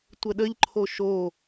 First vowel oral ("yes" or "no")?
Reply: yes